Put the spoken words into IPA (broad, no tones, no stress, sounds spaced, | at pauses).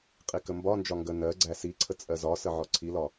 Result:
qʼ i k ə m b ɒ n d͡ʒ ɒ ŋ ɡ ə n ɜ ɡ͡ǀ æ s i ǀʰ ə t͡sʼ ɜ z ɒ s ə ʕ ɔ ǀʰ i l ɒ